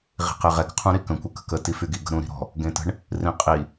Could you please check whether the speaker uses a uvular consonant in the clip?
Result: yes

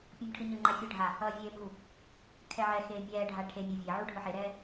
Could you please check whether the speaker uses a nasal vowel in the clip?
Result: no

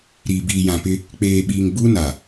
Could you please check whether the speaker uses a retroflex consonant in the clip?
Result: no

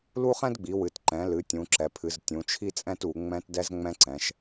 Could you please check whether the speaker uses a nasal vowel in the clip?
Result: yes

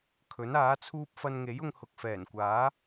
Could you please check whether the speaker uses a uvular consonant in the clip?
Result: no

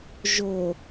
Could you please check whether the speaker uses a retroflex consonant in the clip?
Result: no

